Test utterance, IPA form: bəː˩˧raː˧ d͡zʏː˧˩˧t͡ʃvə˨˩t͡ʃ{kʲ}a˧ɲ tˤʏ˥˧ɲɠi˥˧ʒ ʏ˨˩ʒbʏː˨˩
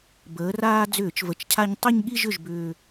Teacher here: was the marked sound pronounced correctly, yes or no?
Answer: no